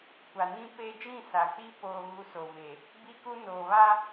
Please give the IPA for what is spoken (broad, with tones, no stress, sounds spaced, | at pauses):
kʷ a˨ n ĩ˦ p e˦ d͡ʒ ĩ˦˨ s a˨ k͡p i˦ p oː˦ ɣ u˦ s o˨ v e˨ | b iː˦ k u˦ n oː˨ β a˦